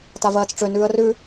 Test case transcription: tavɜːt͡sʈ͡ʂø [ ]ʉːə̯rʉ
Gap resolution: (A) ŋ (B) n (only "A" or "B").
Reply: B